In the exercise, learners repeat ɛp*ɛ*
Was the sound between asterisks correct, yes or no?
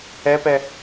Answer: yes